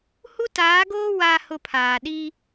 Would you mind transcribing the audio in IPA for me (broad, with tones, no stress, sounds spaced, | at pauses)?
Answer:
h u˦ t aː˨˦ ɡ oː˦ w a˦ h ʊ˦ pʰ aː˨ ɗ i˦